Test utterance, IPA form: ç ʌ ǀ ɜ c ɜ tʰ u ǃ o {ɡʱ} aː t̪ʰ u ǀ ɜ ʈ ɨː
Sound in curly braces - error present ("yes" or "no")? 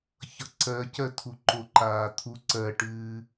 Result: yes